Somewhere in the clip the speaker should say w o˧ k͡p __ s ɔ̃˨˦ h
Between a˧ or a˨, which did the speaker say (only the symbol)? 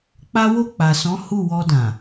a˨